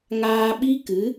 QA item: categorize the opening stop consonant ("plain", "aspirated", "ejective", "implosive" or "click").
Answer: implosive